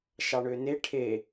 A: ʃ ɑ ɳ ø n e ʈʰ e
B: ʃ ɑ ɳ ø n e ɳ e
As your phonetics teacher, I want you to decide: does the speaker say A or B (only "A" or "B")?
A